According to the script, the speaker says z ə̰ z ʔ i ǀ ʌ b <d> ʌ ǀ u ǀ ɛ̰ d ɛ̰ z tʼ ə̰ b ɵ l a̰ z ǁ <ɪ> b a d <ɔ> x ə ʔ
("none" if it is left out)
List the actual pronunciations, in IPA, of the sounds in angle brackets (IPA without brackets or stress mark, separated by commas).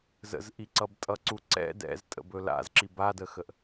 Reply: tʼ, i, ə